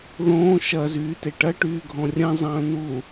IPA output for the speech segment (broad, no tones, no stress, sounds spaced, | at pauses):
ð õː ʃ ɐ z yː t e ʈ ɐ ʈ yː ɡʱ ɔ̃ rʲ ɐ̃ zˤ ɐ̃ː n u